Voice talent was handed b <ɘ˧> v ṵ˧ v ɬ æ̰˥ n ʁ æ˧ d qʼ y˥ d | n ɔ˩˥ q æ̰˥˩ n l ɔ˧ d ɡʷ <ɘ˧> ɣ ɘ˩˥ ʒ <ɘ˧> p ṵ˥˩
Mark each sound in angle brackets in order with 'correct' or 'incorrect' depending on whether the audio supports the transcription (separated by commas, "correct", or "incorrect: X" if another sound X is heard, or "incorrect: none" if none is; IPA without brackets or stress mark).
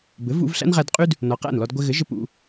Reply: incorrect: ɘ˩˥, correct, correct